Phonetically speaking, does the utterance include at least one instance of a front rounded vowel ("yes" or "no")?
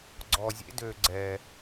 yes